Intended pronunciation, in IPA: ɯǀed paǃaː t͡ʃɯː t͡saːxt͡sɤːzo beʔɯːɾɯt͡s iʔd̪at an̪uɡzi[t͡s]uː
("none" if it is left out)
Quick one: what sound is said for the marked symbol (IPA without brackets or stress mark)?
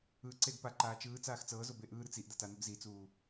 t͡s